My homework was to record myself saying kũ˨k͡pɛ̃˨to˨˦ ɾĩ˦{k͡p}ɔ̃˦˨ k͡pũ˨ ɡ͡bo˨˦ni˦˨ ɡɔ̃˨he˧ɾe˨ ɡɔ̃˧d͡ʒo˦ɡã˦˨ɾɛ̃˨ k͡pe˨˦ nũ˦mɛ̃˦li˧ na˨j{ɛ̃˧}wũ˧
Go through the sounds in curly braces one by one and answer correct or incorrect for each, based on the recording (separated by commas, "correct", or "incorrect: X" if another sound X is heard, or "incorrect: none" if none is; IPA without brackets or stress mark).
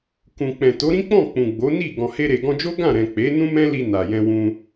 correct, correct